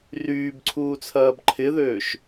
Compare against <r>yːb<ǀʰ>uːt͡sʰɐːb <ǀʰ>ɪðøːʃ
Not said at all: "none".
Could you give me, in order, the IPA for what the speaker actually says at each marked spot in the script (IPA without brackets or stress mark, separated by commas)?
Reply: r, ǀʰ, ǃʰ